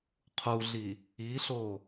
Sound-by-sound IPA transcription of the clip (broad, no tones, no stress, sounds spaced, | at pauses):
qʰ u ɮ i | i ɬ o